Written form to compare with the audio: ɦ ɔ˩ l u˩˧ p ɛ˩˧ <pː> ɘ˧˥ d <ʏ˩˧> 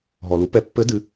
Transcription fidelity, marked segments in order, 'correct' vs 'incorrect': correct, incorrect: ɨ˩˧

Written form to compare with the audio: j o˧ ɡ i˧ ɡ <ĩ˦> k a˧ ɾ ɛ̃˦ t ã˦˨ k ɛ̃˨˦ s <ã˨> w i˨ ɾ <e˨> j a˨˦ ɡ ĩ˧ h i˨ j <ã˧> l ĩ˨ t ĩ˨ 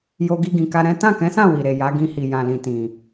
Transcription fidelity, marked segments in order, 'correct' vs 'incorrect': incorrect: ĩ˨, incorrect: ã˦˨, correct, incorrect: ã˨

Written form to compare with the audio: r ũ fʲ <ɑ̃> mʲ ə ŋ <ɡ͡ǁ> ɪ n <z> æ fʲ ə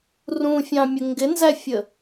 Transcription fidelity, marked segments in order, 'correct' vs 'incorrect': correct, incorrect: ɡ, correct

